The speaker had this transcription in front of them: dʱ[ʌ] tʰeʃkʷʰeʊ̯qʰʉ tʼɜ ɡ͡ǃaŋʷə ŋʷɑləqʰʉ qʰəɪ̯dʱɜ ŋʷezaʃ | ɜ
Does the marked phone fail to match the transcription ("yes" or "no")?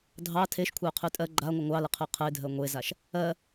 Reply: yes